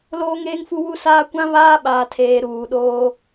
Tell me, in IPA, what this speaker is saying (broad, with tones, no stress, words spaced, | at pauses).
loː˦ŋeː˦ŋfu˦ wu˦saː˦ kʷã˦ βaː˦ɓaː˨tʰeː˨ ɾuː˨ɗoː˦